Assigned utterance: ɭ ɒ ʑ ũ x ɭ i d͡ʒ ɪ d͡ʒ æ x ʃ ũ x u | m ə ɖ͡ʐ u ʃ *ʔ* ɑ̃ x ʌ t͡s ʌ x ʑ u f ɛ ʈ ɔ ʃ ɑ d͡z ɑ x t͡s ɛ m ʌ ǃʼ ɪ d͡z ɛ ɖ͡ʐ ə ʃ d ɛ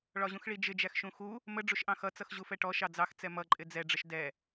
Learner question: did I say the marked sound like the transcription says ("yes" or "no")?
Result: yes